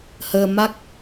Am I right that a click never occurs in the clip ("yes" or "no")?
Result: yes